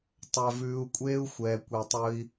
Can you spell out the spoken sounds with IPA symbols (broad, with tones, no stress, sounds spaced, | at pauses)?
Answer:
tˤ œ˨ v ʉː˨ u̯ kʷʼ eː˦ u̯ xʷ ɛː˨ kʷ e˨ tˤ ɵ˧ i̯